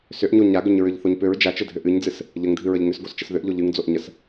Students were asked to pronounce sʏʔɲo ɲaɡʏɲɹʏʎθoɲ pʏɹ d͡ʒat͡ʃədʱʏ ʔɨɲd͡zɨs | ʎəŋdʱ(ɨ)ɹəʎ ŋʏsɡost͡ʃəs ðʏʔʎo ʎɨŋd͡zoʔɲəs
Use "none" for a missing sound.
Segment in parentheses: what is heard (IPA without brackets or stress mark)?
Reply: ɨ